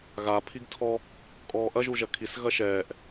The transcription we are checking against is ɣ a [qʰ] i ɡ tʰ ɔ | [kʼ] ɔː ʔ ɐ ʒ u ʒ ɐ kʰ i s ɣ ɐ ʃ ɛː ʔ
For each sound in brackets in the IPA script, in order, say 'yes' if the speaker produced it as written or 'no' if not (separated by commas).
no, yes